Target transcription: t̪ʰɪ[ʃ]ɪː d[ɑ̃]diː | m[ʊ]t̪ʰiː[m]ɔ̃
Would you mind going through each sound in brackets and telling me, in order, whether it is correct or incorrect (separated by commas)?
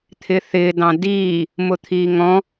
incorrect, correct, correct, incorrect